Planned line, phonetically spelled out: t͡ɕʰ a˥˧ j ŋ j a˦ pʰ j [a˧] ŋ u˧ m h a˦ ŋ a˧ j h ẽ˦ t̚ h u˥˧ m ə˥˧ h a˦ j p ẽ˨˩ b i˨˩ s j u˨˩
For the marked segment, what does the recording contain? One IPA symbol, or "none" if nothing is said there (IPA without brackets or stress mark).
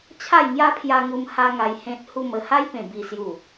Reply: a˧